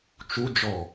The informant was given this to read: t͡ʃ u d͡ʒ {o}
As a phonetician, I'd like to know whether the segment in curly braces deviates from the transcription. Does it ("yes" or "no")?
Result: yes